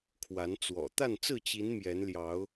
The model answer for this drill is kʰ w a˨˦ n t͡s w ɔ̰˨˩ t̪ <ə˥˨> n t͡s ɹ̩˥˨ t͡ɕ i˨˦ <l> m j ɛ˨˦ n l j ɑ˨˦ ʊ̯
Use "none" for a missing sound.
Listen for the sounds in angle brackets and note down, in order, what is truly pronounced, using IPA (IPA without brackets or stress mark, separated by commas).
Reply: a˥˨, n